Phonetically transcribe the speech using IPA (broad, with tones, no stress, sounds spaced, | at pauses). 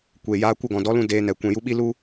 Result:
kʷ eː˨ j aː˧ kʷ ə˦˨ ɡ ɔ̃˨ d ɔ˨˦ l ũ˧ d eː˧ n ɛ˨ kʷ ɛ̃˨ j u˧ ɓ i˦ l u˦